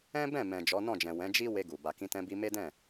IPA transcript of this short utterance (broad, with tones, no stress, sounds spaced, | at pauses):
ɛ̃˦ b ɛ̃˦˨ m ɛ̃˨ d͡ʒ ɔ˨˦ n ɔ̃˦˨ d͡ʒ ɛ̃˨ w ɛ̃˨˦ d͡ʒ i˦ w e˧ ɡ u˨ b a˨ k ĩ˧ t ɛ̃˧ b i˧ m e˦ d ɛ̃˦˨